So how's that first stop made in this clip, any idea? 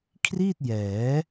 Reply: aspirated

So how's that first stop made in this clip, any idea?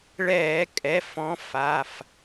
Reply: ejective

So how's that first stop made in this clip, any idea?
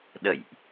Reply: implosive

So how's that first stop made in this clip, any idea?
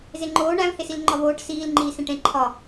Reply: click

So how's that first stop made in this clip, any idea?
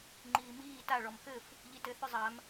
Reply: click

